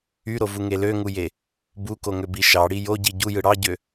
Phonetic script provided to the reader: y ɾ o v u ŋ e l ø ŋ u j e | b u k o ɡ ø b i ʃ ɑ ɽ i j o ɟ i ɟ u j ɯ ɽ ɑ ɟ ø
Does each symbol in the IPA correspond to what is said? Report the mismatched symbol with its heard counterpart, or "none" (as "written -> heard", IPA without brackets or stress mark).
ɡ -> ŋ